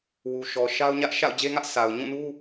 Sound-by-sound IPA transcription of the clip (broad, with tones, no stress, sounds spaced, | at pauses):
w u˨ ʃ ɔ˨ ʃ a˦ ʊ̯ ɲ ä˦ ʔ ʃ a̰˦˨ ʊ̯ d͡ʑ e˦ ŋ ä˦ ʔ s a˨ ʊ̯ ɲ ũ˦˨ n u˦